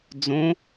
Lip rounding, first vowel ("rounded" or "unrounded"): rounded